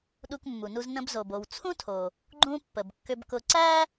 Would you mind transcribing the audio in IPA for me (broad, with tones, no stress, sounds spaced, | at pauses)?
ɗ u˧ k mː u˩ n u˧ z n ə̃˧ b z o˩ b o˩ w t͡sʰ ũ˥ tʰ o˩ | ɡ͡ǃ ũ˧ pː ə˩ b kː ʏ˧ b k ʊ˧ ǀ æ˥